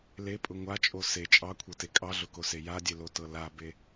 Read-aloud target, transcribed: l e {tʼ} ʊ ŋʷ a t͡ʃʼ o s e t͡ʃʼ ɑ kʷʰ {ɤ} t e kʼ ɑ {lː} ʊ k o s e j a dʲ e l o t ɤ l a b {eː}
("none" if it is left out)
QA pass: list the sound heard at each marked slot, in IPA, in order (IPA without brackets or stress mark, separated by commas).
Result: pʼ, ɤ, ɮ, e